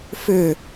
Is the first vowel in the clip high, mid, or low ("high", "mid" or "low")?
high